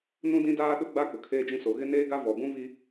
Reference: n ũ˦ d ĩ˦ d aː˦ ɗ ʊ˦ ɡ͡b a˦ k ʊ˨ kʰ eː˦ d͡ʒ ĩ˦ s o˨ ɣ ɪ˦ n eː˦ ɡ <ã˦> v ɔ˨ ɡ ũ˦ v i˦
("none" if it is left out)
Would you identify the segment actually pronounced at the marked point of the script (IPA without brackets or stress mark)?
a˦